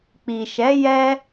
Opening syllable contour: low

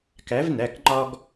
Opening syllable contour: rising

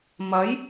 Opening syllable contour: rising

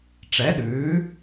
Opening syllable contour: rising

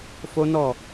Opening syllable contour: high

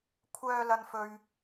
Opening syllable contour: high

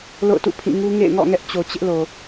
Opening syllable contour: falling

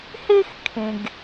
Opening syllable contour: high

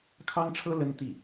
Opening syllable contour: high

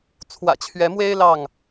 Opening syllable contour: low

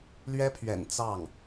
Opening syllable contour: high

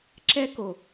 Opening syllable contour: high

